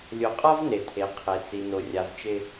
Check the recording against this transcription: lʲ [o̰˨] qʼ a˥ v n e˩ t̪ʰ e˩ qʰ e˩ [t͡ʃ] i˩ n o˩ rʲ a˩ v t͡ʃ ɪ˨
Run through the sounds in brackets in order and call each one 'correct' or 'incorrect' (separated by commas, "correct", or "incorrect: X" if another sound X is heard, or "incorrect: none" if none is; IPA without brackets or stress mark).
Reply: incorrect: o˨, incorrect: t͡s